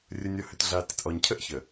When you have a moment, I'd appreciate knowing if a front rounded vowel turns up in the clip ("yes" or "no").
yes